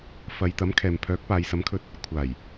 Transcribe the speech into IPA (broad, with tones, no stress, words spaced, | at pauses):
fɐ˨˧jt̪ɐ˨˥mkʰɛː˨mpʰœː˨˥k̚ paː˨˧jsɐ˨˥mkʰɵ˧t̚ | kʷʰaː˨˩j